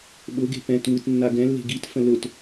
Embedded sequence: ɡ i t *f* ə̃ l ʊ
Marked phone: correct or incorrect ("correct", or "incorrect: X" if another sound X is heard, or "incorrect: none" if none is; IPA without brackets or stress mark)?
correct